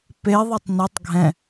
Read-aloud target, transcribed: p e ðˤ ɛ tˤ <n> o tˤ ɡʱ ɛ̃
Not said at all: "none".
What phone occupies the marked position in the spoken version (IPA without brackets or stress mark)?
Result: n